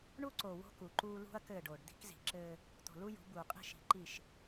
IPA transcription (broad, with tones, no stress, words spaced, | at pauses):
ɳu˦ǀo˨ wo̤˦ku˨ǃuː˦ lṳ˦ɐ̯ kɘː˦˨ɖoː˨ɖ d̪i̤˦kzi̤˨ǁɘː˦ | t̪o̤˨lu˦jṳ˨˦ buː˨qʼi̤˦ ʃi̤˨˦ǃi˦˨ʃ